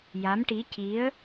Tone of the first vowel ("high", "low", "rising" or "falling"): rising